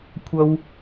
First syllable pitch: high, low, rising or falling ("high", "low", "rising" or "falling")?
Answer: low